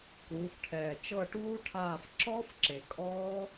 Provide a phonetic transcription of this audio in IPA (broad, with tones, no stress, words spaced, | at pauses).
kuː˩˧fʈʰɛː˨˩ t͡ʃɤ˦˨ʈuː˦˥ʈʰaː˦˨f ǁɔː˦˥f ǁe˨˩kʼɔː˦˥